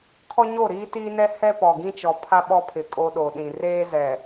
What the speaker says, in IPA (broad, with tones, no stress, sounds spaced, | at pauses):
kʰ ɔ˦ ɲ o˦˨ ɾ iː˦ t iː˦ n ɛ˦ h ɛ˦ p ɔ˨ ɡ ĩ˦ t͡ʃ ɔ˨ pʰ a˦ ɓ ɔ˦ pʰ ɪ˨ kʼ o˦ ɗ o˨ ɗ ĩ˨ r eː˦ z ɛ˨